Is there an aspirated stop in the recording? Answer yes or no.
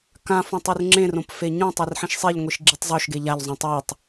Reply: no